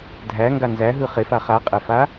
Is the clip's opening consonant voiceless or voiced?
voiced